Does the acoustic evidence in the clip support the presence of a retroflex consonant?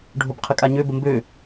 yes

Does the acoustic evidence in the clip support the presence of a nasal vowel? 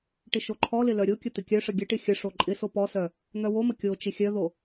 no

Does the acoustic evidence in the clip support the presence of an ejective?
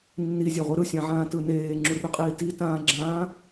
yes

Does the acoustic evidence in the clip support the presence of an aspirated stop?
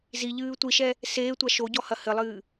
no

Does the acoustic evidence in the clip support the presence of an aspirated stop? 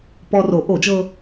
no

